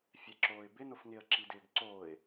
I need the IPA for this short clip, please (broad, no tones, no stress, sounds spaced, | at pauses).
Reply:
fʲ ɛ ǁ oː ɪ̯ b ɪ n ʊ f ŋ ɪ ə̯ ǁ i d ɪː ɡ ǀ oː ɪ̯